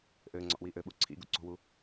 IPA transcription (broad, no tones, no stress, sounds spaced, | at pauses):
ʔ ɘː ŋ͡ǀ ɔ̰ ʔ w i ʔ ɘ ɓ u ǀʰ ḭ ɡ ṵ ǀ o̤ w u